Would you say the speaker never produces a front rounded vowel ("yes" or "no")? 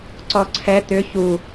no